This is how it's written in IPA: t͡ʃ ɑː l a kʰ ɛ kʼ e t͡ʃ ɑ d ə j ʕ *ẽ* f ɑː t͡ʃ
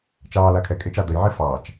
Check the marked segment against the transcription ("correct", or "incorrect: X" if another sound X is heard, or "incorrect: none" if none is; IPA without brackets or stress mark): incorrect: e